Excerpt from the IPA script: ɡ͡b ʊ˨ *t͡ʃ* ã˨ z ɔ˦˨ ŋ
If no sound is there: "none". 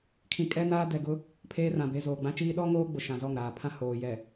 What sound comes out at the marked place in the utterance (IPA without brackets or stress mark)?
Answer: ʃ